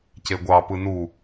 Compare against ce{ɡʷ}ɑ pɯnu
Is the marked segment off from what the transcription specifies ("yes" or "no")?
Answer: no